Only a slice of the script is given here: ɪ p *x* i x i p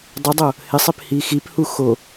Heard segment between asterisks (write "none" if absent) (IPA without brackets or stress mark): h